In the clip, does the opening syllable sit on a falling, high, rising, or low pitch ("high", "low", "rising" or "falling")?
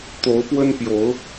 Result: rising